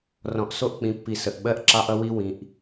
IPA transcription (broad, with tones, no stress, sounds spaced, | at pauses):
r ɔ̃˨ ʔ s o˦ ʔ k͡p ĩ˨˦ pː i˨ s ə˨ ʔ ɓ ɜ˦ ʔ ǁ ɑ˦ ʔ ʌ˦ w i˦ w ĩ˨ ʔ